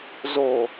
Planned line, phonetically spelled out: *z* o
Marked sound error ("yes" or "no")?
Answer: no